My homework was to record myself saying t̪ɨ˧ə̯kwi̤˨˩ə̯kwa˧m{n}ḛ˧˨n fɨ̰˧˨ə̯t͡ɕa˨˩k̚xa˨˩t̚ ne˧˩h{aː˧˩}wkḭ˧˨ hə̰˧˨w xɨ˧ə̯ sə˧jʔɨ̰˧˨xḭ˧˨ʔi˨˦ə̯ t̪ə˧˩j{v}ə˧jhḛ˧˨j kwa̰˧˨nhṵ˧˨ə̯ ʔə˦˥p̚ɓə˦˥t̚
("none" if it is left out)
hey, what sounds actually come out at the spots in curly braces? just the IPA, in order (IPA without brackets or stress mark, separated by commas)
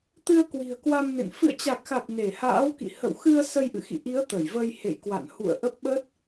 n, a̰ː˧˥, v